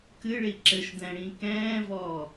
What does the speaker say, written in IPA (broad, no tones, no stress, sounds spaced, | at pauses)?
k ɨ ɭ i ǁ ɘ ʃ d ɛ̃ ɽ ĩ k ɛ̃ː v ɔː